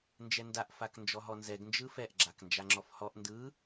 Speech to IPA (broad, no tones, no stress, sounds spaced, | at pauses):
n d͡ʒ ɛ n d a ʔ f a k n d͡ʒ ɔ ɦ ɔ n z ɛ ɡ n d͡ʒ ɯ f ɛ ʔ ɡ͡ǁ a k n d͡ʒ a ŋ͡ǁ ɔ f h ɔ ʔ n d ɯ